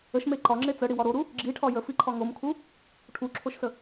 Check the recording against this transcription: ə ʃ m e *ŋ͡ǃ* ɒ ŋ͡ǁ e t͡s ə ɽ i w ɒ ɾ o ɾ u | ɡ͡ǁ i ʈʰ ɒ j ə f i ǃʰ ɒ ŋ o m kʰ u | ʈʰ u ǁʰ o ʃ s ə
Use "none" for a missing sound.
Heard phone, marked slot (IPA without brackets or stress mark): ǃ